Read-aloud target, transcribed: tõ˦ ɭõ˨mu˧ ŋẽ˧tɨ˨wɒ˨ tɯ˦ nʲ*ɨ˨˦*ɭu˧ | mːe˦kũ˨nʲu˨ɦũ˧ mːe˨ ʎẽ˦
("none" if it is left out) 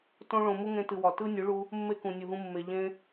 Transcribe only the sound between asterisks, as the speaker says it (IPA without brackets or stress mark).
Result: ɨ˨˦